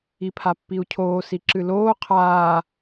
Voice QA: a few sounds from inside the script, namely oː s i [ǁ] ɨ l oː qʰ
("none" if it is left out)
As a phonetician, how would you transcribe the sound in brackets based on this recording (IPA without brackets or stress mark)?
ǁ